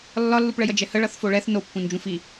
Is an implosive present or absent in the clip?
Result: absent